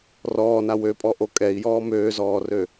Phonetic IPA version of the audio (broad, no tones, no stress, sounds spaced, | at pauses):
r ɔː n a w ø pʼ ɔ ʔ o kʼ ɛ i̯ j ɔː m øː z ɔː r ø